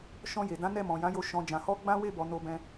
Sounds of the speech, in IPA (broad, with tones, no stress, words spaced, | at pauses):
ʃɔ̃˧je˨dã˨˦ nɛ˦˨mɔ̃˨jã˨˦jo˧ ʃɔ̃˨d͡ʒã˨hɔ˧ ɡ͡bã˦we˦˨bɔ˨ no˧bɛ̃˧